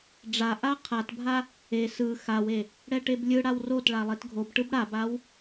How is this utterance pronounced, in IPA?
ɖ͡ʐ a ʔ a qʰ a t bʱ a | e s ɯ x a w e | ɽ ɛ ʈ e b lʲ ɯ ɽ a w r o t ɭ a lˠ e t ɡʱ o b ʈ ɯ b ɽ a b a w

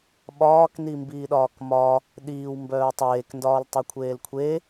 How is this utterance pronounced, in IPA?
ɓ ɒː k n i m b iː ɗ ɒː k m ɒ | ɗ iː w m b œː tˤ eː k n d ɒː l tˤ o kʷʰ eː l kʷʰ e

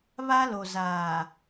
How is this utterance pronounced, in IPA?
β a˦ l o˨ z aː˨

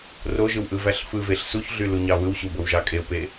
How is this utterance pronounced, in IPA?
r o ʒ ɯ w ʔ ɯ v æ ɬ f ɯ v e ɬ s u ç ɮ y l u ɲ ɑ β ɯ w ɕ u b o w ʒ ɑ kʼ e ʊ̯ p e

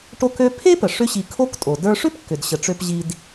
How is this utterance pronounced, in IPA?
ʈ o˥ k ø˥ pʰ e˥ p ə˩ ʂ ʏ˥ ɕ i˧ kʰ o˥ k tʼ o˩ d ə˞˧ ʂ ʏ˥ p kː ʏ˩ d ɕ ə˩ ʈ͡ʂ ø˧ p ʑ i˧ d

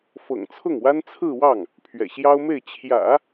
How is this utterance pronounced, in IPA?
f ɤ̰˨˩ ŋ t͡sʰ ʊ˥˩ ŋ w a˥ n t͡sʰ ɹ̩˥˧ w ɑ˥˩ ŋ | pʰ ɥ ɛ̰˨˩ ɕ j ɑ˥ ʊ̯ m e˥˩ ɪ̯ t͡ɕʰ j ä̰˨˩˦

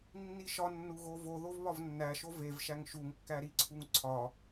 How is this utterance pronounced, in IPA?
nː i ʃ ɒ nː u ɣ o v o ð o v β ɒ v nː æ ʃ o v e v ʃ æ ŋ ʃ u ŋ kː æ ɾ i ǀʰ u ŋ ǀʰ ɒ

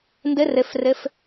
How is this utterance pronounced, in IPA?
n d ɘ r ɘ f r ɘ f

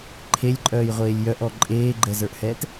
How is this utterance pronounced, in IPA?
ǃʰ e lʲ ǃʼ œː j ʁʷ eː lʲ j œ ʔ ɔ ǃʼ eː ɡ͡ǃ ɛ z ə˞ ʔ h ɛː t

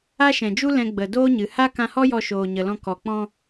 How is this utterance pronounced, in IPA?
a˦ ʃ ɛ̃˨ d͡ʒ u˦ l ɛ̃˧ ɡ͡b ə˨ d oː˦ ɲ ɨ˨ h a˦ k ã˧ h ɔ˦ j ɔ˧ ʃ oː˨ ɲ ə˨ l ɔ̃˧ k ɔ˨ k͡p ɔ̃˧

